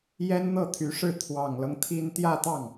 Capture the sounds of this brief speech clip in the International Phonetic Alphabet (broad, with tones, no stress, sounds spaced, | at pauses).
j ɛ˥ n n̪ ɤ˥˩ t̪ʰ y˧˥ ʂ ɻ̩˥˩ t̪ʰ w ɑ˨˩ ŋ l ɤ˦ ŋ t̪ʰ i˥ n t̪ j ä˥˧ t̪ ɑ˥˩ ŋ